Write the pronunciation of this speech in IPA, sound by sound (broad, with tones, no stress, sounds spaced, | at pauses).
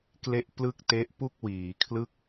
k l e˦˥ ʔ p l ɯ˥˩ k̚ t e˦˥ ʔ p u˥˩ k̚ w iː˩˦ kʰ l ɯ˦˥ k̚